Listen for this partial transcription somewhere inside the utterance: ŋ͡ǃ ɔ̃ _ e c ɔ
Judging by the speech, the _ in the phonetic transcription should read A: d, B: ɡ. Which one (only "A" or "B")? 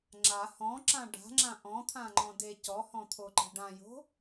A